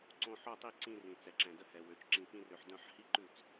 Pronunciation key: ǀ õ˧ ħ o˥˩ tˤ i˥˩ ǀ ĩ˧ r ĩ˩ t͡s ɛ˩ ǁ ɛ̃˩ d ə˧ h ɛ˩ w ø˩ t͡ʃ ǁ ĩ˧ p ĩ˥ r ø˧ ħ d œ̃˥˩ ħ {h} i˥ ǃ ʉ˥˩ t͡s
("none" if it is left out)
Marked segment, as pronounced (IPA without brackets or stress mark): h